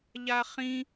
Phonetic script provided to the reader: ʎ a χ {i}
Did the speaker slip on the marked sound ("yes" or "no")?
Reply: yes